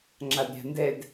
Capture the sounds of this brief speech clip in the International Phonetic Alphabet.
ŋ͡ǁ a d ɾʲ a̤ n d ɛ d

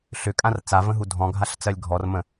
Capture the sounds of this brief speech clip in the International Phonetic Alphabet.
ɬ ʏ kʼ ã r t͡s a v ə̃ ɦ u dʱ ɔ̃ ɡʱ a ɬ t͡s ɜ lʲ ɡʱ ɔ r m ə̃

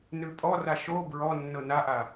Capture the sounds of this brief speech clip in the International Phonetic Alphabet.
n ʉ pʼ ɔ r a ʃ o b ɹ ɔ nː ɤ n a ʔ a

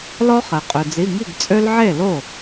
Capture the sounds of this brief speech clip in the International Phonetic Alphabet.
l ɔ˦ χ ɛ˩ qʼ ø˩ d͡z i˩˧˩ ŋ i˥˩ ɡ t͡sʼ ø˦ l ʕ e˥˩ l o˥˩

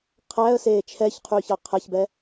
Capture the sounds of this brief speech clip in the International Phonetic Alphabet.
qʰ æ ə̯ s eː t͡ʃʰ ɛ ç qʰ yː ç ɑ qʰ ɛ ç b ɛ

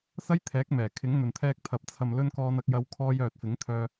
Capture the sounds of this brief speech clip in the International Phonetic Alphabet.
s ɐ˥ j t̪ʰ ɛː˨˥ k̚ m ɛː˨˩ kʰ ɪ˨˥ ŋ n̪ ɵ˨ n t̪ʰ ɛː˧ k̚ t̪ʰ ɐ˨ p̚ t͡sʰ ɐ˨ m l ɵ˧ n k ɔː˧ n ɐ˧ k̚ j ɐ˧ w kʰ ɔː˧ j œː˨ t̚ f ɪ˨˥ ŋ t̪ʰ œː˧

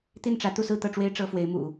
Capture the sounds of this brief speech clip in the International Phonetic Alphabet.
t̪ i˥˩ n ʈ͡ʂ ä˧˥ t̪ u˥˧ s ɹ̩˥˧ t̪ ɤ˥˩ ʈ͡ʂ w e˥ ɪ̯ ʈ͡ʂ ɤ˥ f w e˧˥ ɪ̯ m ṵ˨˩˦

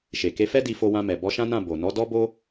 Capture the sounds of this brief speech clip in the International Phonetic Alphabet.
ʃ e˨ k e˧ f ɛ˦ d i˧ f o˧ w ã˧ m ɛ˨ b ɔ˧ ʃ ã˦ n ã˦˨ b o˨ n ɔ˨˦ d ɔ˦ b o˦

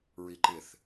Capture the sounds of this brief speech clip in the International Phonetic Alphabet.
ɹ i ǃ ɪ θ

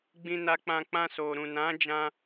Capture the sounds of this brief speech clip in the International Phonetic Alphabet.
ɡ͡b ĩ˧ n a˧ k͡p ã˧ k͡p ã˧ s o˨ ɾ ũ˨ n ã˨˦ d͡ʒ ã˧

